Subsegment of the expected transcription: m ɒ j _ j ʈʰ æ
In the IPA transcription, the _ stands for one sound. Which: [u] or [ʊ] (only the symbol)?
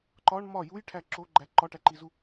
u